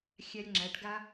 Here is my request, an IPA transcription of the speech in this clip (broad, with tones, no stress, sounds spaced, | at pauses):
xʲ æ˧ lʲ ŋ͡ǁ æ˨˦ ʈ ɡ a˦